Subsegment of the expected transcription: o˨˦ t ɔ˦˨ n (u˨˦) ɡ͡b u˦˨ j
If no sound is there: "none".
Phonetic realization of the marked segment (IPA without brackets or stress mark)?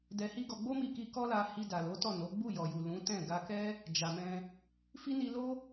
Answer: o˨˦